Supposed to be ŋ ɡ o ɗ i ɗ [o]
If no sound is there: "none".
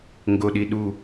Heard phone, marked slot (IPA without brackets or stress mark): u